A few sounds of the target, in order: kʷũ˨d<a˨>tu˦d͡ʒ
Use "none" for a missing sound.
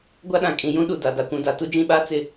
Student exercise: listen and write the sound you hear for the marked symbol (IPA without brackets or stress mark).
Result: a˨